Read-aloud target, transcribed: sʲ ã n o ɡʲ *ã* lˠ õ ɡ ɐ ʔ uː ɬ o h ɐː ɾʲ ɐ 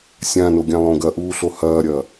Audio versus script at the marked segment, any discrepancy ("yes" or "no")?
no